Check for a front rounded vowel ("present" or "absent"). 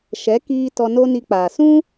absent